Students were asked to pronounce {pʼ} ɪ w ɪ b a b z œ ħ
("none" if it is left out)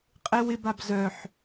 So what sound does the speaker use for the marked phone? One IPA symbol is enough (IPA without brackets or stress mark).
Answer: qʼ